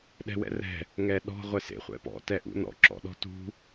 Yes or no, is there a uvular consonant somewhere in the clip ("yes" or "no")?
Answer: yes